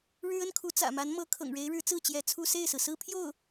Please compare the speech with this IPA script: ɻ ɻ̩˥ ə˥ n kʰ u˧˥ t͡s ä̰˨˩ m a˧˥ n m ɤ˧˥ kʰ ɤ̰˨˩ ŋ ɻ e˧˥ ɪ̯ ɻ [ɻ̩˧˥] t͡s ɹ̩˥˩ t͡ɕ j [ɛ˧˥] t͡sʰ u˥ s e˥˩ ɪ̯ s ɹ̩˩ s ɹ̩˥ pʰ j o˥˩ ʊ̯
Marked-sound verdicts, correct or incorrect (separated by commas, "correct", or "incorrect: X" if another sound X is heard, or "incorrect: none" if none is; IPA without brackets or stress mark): correct, correct